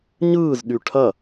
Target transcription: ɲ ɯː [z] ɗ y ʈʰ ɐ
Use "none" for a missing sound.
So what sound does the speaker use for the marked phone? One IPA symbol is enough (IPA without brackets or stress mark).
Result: z